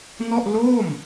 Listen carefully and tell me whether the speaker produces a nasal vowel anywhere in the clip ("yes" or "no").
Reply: no